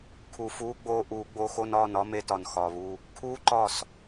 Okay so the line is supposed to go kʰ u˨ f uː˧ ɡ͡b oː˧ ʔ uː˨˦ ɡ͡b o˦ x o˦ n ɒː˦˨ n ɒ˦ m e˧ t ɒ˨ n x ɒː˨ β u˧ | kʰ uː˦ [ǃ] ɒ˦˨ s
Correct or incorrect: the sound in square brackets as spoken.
correct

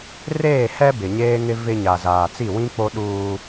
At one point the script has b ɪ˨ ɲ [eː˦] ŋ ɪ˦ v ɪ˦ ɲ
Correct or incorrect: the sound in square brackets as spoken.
correct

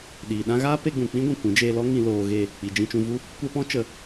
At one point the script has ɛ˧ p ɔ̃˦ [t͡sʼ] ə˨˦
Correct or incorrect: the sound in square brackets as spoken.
incorrect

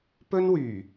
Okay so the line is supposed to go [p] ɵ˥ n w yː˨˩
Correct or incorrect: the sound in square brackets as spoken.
correct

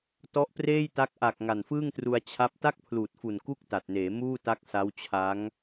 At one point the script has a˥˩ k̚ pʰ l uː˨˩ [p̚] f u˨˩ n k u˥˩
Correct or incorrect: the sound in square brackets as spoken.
incorrect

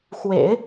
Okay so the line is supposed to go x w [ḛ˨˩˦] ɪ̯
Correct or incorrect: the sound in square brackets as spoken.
correct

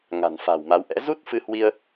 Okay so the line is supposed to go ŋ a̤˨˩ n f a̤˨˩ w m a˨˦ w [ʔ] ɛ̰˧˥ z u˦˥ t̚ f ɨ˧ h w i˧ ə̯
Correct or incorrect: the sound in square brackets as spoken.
correct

